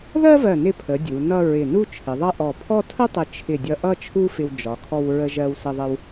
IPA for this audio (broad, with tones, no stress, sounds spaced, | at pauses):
ð ɜ˥ v ɜ˧˩ n ɪ˧ pʰ ə˩˧ dʲ u˩˧ n ʌ˥˧ ɹ ɪ˧˩ n u˥˧ t͡ʃʰ ɪ˩˧ ðˤ ʌ˥˧ ʔ ɔ˧˩ pʰ ɔ˥˧ tʰ ə˥ tˤ ɪ˧˩ t͡ʃʰ ɪ˧˩ dʲ ʌ˧ ʔ ʌ˥˧ t͡ʃʰ u˥ f ɪ˧ w d͡ʒ ɒ˩˧ kʰ ɔ˧ w ɹ ə˧ ʒ ɜ˧ w s ə˧ ðˤ ə˧ w